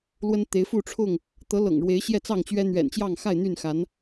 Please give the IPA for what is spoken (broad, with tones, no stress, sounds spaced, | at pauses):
l w ə˦ n t̪ e˨˦ ɪ̯ f u˥˨ ʈ͡ʂʰ ʊ˥˨ ŋ | t̪ ɤ˨˦ l ɤ̰˨˩ ŋ ɻ w e˨˦ ɪ̯ ɕ j ɛ˥˨ t͡s ɑ˥˨ ŋ t͡ɕ ɥ ɛ˦ n̪ ɥ ɛ̰˨˩ n t͡ɕ j ɑ˥˨ ŋ x a˥˨ ɪ̯ n̪ y˥˨ n x a˨˦ n